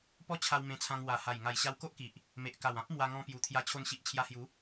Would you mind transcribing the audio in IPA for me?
pɔ˦ t͡ɕʰa˧w mẽ˧t͡sʰã˧ŋ wa˨˩ha˨˩j ŋa˨˩jɕa˧w ko˦ʔki˨ʔ | me˨ʔka˨˩wã˦p̚ mwa˧ŋɔ̃˧ pju˨˩t̪ʰja˧ t͡ɕʰo˧nɕi˨ʔ t͡ɕʰja˧hju˨˦

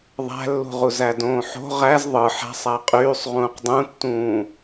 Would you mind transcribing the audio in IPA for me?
ðˤæ̤lːṳʁuz ædõːħo̤ ʁæz ðˤɯ ħæ̤sˤ æqʼyːsˤ ʁũːqdˤũtːũː

